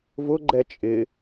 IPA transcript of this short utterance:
v ʊ ɡ͡ǃ ɛ t͡ʃʼ ɪ

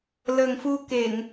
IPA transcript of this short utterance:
l əː˨˩ ŋ f u˧ k e˧˩˨ ŋ

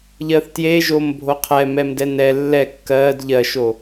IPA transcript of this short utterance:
ʎ ɜ θ t j e ʒ o m bʱ o qʰ ɛ m ɛ m d ɛ n ɛ lː ɛ kː ɜ d ʎ ɜ ʃ o

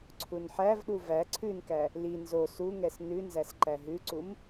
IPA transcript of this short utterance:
ǀʰ u n ħ æ v ɗ u v æ ǀʰ ʉ n k æ | l i n z o s u ŋ ɛ s n ʉ n z æ s ǃ æ ɦ ʉ ǀ u m

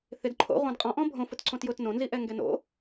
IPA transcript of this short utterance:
θ ɪ d ǃʰ o̰ ʁʷ ã d qʼ ɔ̃ ʔ ɔ̃ bʱ õ f ʊ t ǀ õ t j ʊ t n õ n z i ʔ ɛ ŋ ɡ ɛ n o̰

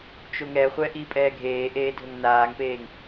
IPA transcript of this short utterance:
t͡ʃ o ŋ ɛ χʷ ɛ ʔ i pʼ ɛː ɡʱ eː ʔ eː dʱ ɵ ŋ n aː ŋ p eː ŋ

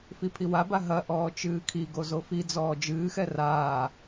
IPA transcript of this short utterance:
f i pʰ i w a b a ɦ ɐ ʔ ɔː t͡ʃ ɨː kʰ i ɡ o z o f i d͡z ɔː d͡ʒ ɨː x ɛ r aː

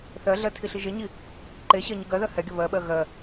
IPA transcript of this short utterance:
θ ɜ ɮ ɜ tʰ i ɬ i ʒ e ɲ i | ǃ e ɕ ɜ ɲ ɯ ɡ ɜ ð ɜ h ɛ ɡʲ ə β ɜ ɓ ɜ ɣ ɜ

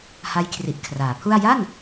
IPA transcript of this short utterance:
h a˦˥ j kʰ r i˨˩ ʔ kʰ r aː˩˦ pʰ u˥˩ a̯ j a˥˩ n

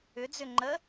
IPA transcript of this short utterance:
ʏ d͡z ʏ ŋ͡ǃ ə

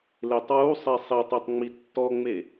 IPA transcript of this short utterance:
l e tˤ w u sˤ e sˤ i tˤ e tˤ ŋ͡m i tː ɔ ŋ͡m e

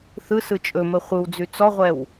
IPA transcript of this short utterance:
θ ɯ s ɯ t͡ʃʼ ɵ m ə χʷ ɯ w d͡z ʉ t͡s ɔ ʁʷ ɛ w

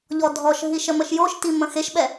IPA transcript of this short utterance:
ʎ ɔ dʱ ɔ ʃ ɦ i ʃ ə m ə ʃ j o ʃ t i m ə̃ x e ʃ ɓ ɛ

